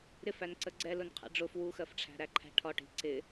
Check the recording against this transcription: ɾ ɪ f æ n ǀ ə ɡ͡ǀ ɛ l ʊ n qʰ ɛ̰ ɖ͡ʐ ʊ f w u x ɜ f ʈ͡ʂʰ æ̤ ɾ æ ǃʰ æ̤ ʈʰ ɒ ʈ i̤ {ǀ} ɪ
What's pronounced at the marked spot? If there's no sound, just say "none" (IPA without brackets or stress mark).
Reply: ǀ